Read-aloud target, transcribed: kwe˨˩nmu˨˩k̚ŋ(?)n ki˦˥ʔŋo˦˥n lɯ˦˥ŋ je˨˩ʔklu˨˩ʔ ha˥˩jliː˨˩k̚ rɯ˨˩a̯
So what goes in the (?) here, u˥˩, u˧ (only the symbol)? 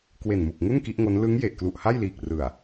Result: u˥˩